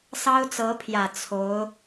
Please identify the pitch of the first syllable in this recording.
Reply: high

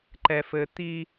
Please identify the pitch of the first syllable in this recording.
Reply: low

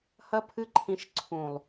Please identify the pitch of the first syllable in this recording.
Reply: high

